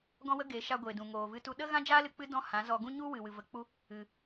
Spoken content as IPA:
ɡ ɔ̃˦ w ə˦ ɡ eː˨˦ ʃ a˧ ɡʷ eː˨ d ũ˨ ŋ oː˨ v ɨ˧ t u˧ ɗ ə˦ ɣ ã˦ d͡ʒ aː˦ l ɨ˧ k͡p ɨ˦ d ɔ̃˦˨ h ã˨˦ z ɔ˧ ɡ ũ˦ ɲ u˦ w ɨ˨ w ɨ˨ v ə˨ k͡p u˧ | ɨ˨

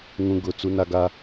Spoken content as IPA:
ŋ ũ˦ ɡ ʊ˦˨ t͡s u˦ n a˦ ɡ a˦

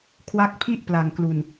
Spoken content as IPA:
kʰ w a˦˥ k̚ pʰ i˥˩ ʔ p l a˨˩ ŋ k l u˨˩ n

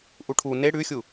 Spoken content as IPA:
ʔ u ʈʰ u n e ɽ ʉ xʲ u

